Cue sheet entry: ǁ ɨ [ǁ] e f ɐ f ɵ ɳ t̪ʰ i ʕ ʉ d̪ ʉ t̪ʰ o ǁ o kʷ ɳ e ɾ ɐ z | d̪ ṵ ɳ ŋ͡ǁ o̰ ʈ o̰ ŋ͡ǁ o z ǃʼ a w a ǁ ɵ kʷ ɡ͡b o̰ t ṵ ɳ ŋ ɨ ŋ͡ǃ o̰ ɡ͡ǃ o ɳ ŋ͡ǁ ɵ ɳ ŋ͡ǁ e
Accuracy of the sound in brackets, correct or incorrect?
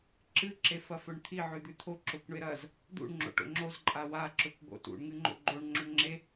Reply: correct